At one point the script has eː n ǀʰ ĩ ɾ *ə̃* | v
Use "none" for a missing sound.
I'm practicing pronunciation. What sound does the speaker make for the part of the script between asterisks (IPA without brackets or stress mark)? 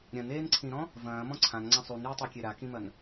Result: ɔ̃